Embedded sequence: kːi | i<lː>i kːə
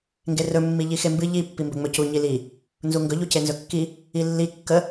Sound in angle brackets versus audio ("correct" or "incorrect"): correct